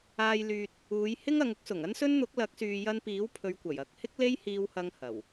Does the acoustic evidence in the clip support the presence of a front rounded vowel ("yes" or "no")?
yes